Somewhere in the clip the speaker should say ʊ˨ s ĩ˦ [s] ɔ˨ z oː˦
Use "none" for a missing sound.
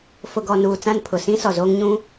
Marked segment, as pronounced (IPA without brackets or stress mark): s